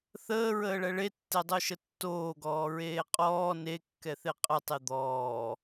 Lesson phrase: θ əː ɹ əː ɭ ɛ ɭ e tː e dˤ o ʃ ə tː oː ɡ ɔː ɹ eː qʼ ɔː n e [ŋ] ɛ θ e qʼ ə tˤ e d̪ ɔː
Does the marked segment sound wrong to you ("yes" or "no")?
yes